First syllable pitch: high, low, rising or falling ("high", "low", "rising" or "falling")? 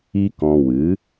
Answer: high